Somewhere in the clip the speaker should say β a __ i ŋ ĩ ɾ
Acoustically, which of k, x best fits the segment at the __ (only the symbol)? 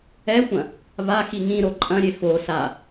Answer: x